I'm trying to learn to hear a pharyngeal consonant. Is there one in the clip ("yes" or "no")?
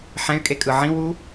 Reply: yes